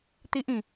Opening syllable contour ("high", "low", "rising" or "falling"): high